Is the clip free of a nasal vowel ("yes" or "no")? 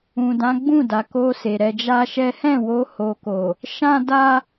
no